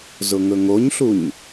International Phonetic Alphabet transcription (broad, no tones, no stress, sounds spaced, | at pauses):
z ʊ ŋ ɵ ŋ o ɲ ɬ u ɲ